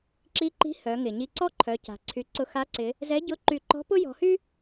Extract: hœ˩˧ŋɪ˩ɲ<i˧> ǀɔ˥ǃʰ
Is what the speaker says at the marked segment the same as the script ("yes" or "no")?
yes